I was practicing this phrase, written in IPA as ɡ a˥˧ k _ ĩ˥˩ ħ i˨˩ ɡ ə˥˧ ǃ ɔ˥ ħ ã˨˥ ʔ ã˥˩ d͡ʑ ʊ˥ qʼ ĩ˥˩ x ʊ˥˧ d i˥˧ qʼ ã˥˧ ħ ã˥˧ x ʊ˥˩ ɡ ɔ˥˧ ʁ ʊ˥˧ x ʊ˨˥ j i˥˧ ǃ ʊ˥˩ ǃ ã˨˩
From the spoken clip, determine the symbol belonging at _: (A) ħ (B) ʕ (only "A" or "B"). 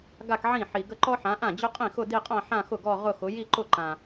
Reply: B